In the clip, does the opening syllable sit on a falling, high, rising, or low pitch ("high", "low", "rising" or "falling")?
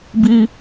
high